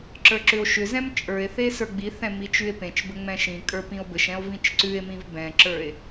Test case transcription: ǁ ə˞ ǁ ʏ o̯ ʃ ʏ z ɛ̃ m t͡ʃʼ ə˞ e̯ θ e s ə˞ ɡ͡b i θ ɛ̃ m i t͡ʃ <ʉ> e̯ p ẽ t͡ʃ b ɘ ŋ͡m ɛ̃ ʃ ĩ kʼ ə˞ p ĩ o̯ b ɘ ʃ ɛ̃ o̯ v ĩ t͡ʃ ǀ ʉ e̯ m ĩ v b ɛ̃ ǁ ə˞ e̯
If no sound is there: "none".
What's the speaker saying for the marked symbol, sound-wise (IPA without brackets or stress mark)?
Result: ʉ